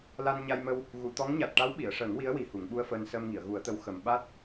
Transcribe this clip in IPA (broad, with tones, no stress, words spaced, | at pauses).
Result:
la˧n ɲa˧jmə˧w | ɣu˨˩˨t̪ɔ˧˥ŋ ɲa˨˩t̚ʈa˧˥w ɓi˨˩˨ə̯ʂəː˨˩˦ŋwi˧˥ə̯ wi˨˩hu˨˩˨ŋɓu˧ə̯fəː˧n səː˧mŋi˨˩˨ə̯ɣu˨˩˦ə̯t̪ə˧˥w xə˨˩m ɓa˦˥t̚